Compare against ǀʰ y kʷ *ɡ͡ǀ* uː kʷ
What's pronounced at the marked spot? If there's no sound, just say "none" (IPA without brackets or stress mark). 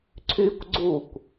ɡ͡ǀ